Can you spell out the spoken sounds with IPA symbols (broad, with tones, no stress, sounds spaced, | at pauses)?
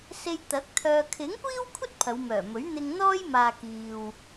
s e˧ j t̪ ɐ˨˥ k̚ t̪ʰ œː˧ kʰ ɪ˨˥ ŋ kʷ iː˥ w kʷʰ ɐ˥ t̚ pʰ ɐ˨˧ w m œː˨˩ m ɵ˨˥ ɥ n̪ ɪ˧ ŋ n̪ ɔː˥ j m aː˨ k iː˨ w